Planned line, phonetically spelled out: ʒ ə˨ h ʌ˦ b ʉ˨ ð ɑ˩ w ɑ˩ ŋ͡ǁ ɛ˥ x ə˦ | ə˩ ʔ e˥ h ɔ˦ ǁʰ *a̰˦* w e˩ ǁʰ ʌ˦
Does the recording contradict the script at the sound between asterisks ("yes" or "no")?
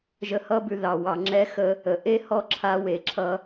yes